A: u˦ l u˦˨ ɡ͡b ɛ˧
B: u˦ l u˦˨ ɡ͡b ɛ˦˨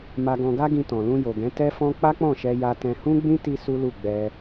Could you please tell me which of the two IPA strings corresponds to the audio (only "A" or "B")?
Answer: A